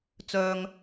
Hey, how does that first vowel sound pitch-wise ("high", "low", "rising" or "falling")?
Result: low